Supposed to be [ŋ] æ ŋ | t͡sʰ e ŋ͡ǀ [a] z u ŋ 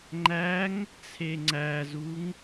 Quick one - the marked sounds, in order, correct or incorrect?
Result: incorrect: ŋ͡ǃ, incorrect: æ

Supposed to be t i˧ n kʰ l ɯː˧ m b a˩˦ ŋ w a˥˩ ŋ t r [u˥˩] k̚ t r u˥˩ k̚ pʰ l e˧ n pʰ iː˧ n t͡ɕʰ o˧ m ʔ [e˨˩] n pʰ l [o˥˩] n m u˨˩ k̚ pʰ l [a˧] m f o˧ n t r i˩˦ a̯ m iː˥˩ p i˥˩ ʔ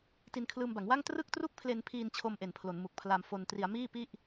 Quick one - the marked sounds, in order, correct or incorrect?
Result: incorrect: ɯ˥˩, correct, incorrect: o˩˦, correct

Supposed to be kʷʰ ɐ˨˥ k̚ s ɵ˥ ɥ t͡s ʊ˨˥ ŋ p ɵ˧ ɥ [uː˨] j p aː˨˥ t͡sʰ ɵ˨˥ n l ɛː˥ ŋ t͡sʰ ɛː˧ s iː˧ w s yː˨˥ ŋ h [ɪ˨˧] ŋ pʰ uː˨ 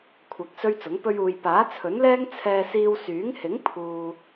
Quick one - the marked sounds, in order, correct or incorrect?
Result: correct, incorrect: ɪ˨˥

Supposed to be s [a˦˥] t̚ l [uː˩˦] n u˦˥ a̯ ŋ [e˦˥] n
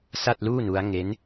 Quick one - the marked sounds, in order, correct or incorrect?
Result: incorrect: a˥˩, incorrect: uː˥˩, correct

